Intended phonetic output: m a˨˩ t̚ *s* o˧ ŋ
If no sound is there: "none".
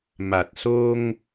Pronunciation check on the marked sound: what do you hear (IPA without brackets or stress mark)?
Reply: s